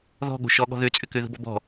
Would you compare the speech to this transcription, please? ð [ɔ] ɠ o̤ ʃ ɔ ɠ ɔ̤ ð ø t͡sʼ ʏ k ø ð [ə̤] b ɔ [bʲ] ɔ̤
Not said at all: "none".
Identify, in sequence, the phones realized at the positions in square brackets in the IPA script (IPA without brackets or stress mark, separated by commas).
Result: ɔ̤, ə̤, b